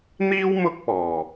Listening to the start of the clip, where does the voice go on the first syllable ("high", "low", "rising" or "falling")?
high